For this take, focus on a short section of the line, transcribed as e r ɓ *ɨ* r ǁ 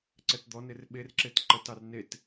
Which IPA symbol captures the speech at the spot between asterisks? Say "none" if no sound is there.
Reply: e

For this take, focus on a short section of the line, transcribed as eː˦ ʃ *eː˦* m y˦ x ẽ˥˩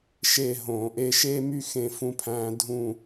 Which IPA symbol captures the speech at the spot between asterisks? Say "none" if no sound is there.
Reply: eː˦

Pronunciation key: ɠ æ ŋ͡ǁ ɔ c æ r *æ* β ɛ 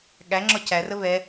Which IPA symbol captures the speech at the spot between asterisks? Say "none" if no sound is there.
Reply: ə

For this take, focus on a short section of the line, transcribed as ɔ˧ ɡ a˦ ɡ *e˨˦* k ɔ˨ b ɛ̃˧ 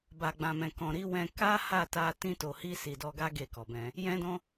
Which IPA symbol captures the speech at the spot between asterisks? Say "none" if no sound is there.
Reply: e˦˨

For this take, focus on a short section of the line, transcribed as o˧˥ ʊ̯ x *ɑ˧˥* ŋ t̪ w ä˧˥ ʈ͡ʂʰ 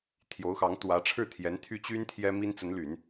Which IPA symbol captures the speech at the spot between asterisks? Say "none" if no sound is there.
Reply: ɑ˧˥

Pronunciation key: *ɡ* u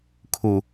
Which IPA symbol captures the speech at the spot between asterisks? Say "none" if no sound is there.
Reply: kʰ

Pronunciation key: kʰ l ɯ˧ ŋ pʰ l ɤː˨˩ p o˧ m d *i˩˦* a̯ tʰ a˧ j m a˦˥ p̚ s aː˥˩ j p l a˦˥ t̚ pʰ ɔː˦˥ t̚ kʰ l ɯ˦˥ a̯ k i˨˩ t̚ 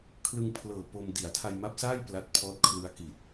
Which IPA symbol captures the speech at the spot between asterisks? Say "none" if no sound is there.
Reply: i˩˦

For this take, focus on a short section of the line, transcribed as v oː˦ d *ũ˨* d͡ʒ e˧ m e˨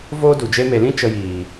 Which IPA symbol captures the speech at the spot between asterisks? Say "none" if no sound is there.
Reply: u˨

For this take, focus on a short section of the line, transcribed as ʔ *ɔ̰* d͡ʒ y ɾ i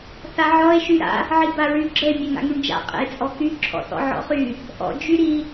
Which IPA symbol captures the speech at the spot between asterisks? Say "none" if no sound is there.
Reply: ɔ̰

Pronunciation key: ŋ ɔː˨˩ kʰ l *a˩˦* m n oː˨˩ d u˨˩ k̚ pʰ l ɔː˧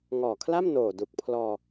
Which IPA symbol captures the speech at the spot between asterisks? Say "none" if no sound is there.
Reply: a˥˩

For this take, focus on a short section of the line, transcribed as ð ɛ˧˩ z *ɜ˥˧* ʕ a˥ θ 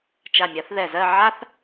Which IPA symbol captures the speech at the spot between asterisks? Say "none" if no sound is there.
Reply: ɜ˥˧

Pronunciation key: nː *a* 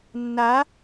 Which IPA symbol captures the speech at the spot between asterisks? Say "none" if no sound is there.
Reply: a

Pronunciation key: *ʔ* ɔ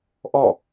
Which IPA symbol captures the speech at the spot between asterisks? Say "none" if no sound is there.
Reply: ʔ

